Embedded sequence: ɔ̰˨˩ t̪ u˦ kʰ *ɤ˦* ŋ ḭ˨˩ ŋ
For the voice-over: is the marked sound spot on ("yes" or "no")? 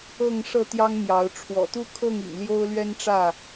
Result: no